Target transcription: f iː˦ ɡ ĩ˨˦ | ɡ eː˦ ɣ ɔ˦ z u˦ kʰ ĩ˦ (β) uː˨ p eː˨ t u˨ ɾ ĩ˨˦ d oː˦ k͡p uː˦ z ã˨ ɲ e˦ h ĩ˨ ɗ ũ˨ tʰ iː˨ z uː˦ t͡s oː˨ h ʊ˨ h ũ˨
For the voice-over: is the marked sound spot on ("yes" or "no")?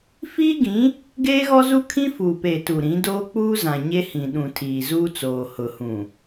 no